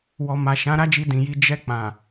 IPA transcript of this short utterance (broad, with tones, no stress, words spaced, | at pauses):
wɔ˨ ma˨ ʃã˨˦ɾa˦d͡ʒi˧ dĩ˨ji˧ d͡ʒɛ˧k͡pã˨